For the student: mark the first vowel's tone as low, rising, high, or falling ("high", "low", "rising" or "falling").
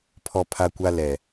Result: high